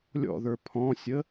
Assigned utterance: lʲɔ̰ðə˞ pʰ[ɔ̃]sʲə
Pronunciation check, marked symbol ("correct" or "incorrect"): correct